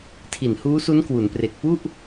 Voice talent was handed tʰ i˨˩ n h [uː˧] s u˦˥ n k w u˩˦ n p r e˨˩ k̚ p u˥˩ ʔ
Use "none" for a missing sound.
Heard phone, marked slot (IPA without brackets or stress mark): uː˦˥